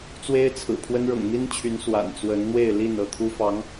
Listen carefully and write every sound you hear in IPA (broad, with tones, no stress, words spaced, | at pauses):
t͡swe˥ɪ̯t͡sʰɹ̩˨˩pʰwə˥n ɻɤ̰˨˩ŋn̪i˥nt͡ɕʰy˧˥n swa̰˨˩nt͡swə˧˥nn̪we˥˧ɪ̯ li˥˧n ɤ˥˩t̪ʰu˥fɑ˧˥ŋ